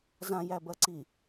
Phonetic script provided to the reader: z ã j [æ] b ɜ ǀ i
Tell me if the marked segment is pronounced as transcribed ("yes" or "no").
yes